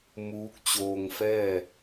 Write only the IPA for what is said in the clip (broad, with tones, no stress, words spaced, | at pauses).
muː˧˥k̚ t͡ɕoː˧ŋfɛː˥˨